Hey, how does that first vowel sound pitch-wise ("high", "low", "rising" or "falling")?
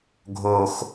high